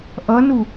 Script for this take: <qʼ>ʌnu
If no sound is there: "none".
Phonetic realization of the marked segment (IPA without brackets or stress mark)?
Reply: ʔ